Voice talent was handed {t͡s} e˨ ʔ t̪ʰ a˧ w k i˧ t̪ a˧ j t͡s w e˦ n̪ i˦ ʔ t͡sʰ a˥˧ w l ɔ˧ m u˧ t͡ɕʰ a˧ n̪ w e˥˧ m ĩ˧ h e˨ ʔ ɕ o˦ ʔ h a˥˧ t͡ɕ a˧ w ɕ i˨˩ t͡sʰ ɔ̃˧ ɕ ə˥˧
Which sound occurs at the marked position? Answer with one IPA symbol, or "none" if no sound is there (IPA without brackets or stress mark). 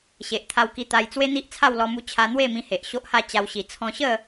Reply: ɕ